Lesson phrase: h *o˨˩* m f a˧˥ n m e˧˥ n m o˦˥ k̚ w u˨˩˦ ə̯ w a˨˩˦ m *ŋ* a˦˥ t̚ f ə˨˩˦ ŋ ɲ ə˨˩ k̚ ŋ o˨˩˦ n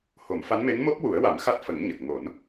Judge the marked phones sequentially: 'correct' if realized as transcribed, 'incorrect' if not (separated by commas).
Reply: incorrect, incorrect